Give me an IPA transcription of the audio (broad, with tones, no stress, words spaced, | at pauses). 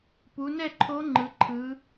pu˩˧nɛ˥˨ǃʰo˧˥ ŋ͡ǃɯ˩˧ǃʰɯ˩˧